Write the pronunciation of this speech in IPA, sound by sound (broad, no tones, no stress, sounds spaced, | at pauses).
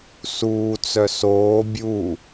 s uː t͡s œ s oː bʲ u